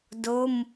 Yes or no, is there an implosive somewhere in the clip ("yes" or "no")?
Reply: no